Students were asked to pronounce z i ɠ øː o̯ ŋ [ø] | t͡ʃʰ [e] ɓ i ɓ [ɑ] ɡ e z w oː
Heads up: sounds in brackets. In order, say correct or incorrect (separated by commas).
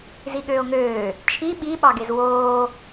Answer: incorrect, incorrect, correct